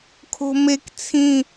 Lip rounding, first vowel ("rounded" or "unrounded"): rounded